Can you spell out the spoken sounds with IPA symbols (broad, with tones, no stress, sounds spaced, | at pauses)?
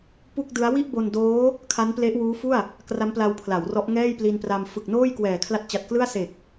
p u˥˩ k̚ d ɯ˦˥ a̯ w i˥˩ ʔ b o˧ n d oː˦˥ | kʰ a˦˥ n p l e˦˥ ʔ w uː˦˥ f u˥˩ a̯ | k r a˦˥ m p l a˧ w pʰ l a˩˦ w r ɔ˦˥ ʔ ŋ ɛː˥˩ j p l i˧ n p r a˧ m f ɯ˨˩ k̚ n oː˥˩ j k w ɛː˨˩ kʰ l a˦˥ t̚ t͡ɕ a˨˩ t̚ k l ɯ˥˩ a̯ s e˨˩ k̚